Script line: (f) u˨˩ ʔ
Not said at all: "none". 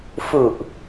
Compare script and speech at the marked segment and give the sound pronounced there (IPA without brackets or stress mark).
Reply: f